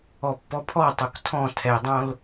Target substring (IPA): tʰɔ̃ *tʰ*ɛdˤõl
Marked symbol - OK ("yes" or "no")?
yes